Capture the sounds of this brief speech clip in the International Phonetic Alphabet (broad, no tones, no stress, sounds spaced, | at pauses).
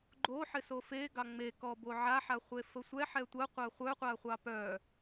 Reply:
ɡ͡ǃ o ħ ɪ s o f e ɡ ɑ ŋ͡m e k ɔ b o ʕ a ħ a χʷ e f ə sʷ ɛ ħ ɛ tʷ ə qʷ a χʷ œ qʷ a χʷ ɑ p œ